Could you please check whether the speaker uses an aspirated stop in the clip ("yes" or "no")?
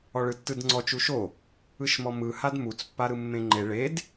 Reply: no